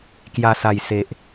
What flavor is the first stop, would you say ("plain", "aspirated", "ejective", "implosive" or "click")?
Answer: plain